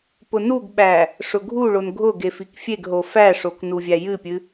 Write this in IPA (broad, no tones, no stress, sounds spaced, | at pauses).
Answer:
p ʊ n u ɡ ɓ æ | ʂ ʊ ɡʱ u ɭ o n ɡʱ ʊ ɡ e f i k fʲ e ɡ ɦ o f æ ʂ o k n u vʲ æ j ɨ pʲ ɨ